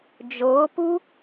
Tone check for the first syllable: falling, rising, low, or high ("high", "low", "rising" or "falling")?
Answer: rising